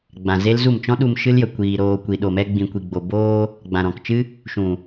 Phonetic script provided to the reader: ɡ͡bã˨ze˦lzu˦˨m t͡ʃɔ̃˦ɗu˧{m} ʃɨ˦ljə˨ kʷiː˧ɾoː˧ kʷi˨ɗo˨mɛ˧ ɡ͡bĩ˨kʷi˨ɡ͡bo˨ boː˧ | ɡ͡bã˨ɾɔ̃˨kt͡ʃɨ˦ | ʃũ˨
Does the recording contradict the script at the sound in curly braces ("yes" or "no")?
no